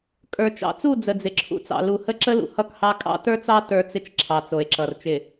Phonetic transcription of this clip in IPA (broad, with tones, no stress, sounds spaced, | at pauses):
kʼ ə˞˨ t͡ʃ ɑ̰˨ t͡s u˦˨ d͡z ə˨ d͡z ɪ˨ ǁʰ ṵ˨ t͡s ɑ̰˨ l u˨ h ə˦ ǁ ə˦ l ṵ˨ h ʌ˦ k h ɑ˦ kʼ ɑ̰˦ t ə˞˦ t͡s ɑ˦ t ə˞˦ t͡s ɪ˦ t͡ʃ ǁʰ ɑ˨ t͡s o˨ e̯ ǁ ʌ˨ r t͡ʃ ɪ˨